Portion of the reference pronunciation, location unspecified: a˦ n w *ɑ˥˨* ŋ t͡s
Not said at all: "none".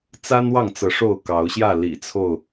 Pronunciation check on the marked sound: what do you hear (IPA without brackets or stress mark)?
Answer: ɑ˥˨